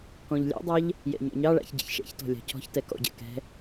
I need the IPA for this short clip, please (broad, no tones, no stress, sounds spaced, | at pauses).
k ɔ̃ ʎ lʲ ɑ̰ dˤ ɑ ʎ | j ɛ̰ ɲ ɔ̰ ɲ ɑ ɭ a̰ ç ɟ ḭ ç ʃ ɛ̰ ç t ɔ̤ lʲ ɑ̤ cʰ ɔ̤ ç t ɛ k ɔ̰ ɟ ɛ̰ k ɛ̤